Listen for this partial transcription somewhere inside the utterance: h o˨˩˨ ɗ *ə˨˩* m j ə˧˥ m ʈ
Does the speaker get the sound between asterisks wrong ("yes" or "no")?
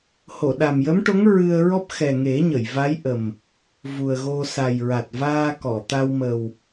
yes